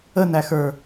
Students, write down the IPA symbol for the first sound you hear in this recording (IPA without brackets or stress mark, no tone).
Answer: ə